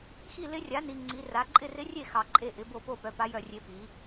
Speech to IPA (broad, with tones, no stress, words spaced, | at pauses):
xi˦˨lɪ˧˥rʲa˩˥ ni˨ ŋ͡ǀi˩˥ra˩˥ ǃʼɪ˦˨rɪ˧˥rʲe˦˨ xɑ˨ǃʼe˦˨ʔɪ˩˥bo˦˨ po˦˨pœ˩˥ pa˧˥ jœ˦˨rʲe˧˥pi˩˥